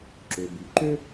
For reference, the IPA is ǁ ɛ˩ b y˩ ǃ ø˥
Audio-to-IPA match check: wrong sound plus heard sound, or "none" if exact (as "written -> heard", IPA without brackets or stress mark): ɛ˩ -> ø˩